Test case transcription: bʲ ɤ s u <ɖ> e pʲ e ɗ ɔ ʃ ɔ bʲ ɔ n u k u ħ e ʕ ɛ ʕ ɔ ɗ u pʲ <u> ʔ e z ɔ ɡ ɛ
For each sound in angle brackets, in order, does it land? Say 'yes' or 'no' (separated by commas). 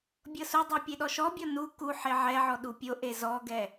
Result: no, no